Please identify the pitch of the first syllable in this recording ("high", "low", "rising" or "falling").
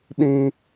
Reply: high